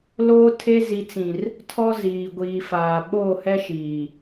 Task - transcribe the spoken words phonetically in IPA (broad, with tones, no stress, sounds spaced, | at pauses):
l oː˦ tʰ e˦ z i˨ t͡s ĩ˨ r | tʰ ɔ˦ z iː˨ ɡʷ iː˨ f aː˨ ɓ oː˦˨ h ɛ˦ ʃ iː˨